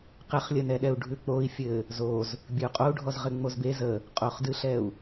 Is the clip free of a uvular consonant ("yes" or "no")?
no